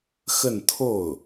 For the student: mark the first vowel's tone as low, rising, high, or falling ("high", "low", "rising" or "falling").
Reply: falling